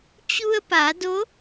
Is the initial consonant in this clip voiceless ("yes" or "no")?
yes